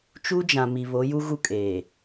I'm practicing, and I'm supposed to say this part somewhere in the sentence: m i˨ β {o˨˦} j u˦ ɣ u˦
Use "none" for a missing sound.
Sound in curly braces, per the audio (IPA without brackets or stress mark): o˨˦